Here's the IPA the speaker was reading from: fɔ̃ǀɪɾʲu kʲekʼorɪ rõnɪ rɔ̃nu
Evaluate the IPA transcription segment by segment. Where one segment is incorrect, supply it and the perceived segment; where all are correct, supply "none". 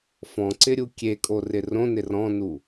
none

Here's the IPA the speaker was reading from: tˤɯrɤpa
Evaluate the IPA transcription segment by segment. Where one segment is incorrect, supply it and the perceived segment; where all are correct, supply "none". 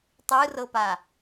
none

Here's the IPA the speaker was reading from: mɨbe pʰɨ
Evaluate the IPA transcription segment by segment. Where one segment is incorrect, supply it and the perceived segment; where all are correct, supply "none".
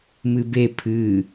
none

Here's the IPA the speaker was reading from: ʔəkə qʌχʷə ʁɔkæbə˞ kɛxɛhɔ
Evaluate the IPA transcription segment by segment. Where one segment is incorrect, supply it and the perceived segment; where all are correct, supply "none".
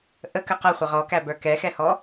none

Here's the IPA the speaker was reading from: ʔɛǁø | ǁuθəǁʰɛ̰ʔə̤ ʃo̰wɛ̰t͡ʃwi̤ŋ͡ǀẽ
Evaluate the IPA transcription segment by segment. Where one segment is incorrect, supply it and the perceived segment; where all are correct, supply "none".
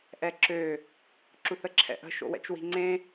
none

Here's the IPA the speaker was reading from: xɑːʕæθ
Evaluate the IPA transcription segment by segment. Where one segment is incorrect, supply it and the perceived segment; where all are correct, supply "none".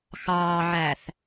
none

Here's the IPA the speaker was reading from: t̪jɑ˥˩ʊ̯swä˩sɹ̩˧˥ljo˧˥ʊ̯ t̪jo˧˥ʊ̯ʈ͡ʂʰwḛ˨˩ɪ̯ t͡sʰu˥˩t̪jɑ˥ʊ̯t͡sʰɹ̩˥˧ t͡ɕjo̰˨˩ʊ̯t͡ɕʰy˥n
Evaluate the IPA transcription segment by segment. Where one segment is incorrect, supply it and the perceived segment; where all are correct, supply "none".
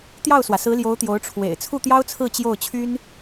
o̰˨˩ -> o˥˩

